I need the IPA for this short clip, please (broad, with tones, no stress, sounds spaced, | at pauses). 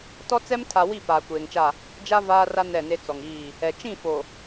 t ɔ˦ t͡s ɛ˦ m tʰ a˨ w i˦˨ p aː˨ kʷ eː˨ ŋ t͡ʃ a˦˨ | d͡ʒ a˦ v aː˦ r a˦ n ɛ˦˨ n e˦ t͡s ɔ˨ ŋ iː˦˨ | ɛ˨ t͡ʃ ĩ˦˨ f o˨